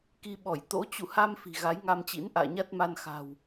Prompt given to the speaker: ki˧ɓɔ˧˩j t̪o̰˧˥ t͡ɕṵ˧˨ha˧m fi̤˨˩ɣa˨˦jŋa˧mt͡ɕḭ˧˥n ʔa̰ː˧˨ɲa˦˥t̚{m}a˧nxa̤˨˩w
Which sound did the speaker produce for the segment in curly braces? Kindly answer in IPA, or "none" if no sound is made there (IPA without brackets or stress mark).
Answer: m